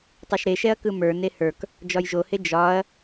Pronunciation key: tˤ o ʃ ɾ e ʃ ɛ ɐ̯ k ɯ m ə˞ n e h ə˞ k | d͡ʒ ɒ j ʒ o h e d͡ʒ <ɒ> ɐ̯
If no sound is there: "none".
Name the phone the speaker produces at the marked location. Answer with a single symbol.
ɒ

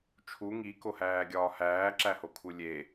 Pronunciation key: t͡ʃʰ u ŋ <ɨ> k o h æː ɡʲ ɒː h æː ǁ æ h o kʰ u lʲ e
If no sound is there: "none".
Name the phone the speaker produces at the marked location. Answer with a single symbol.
i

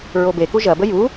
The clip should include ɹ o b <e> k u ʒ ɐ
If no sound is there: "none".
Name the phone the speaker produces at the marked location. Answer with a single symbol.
e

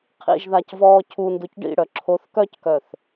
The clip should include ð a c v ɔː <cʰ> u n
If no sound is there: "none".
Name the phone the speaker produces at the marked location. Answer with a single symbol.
cʰ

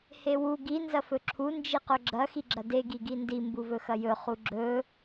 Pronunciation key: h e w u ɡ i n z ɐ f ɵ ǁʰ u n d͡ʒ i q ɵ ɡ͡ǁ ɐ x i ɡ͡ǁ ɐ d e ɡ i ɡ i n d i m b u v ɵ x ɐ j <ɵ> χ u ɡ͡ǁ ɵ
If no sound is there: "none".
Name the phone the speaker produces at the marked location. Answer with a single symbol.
ɵ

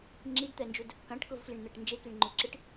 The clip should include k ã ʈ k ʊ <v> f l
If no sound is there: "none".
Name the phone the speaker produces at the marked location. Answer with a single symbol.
v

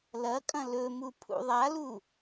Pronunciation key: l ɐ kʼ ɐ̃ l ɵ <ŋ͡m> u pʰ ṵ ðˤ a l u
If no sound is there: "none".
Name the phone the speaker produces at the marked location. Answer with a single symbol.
m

